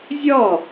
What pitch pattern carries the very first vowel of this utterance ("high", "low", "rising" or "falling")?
falling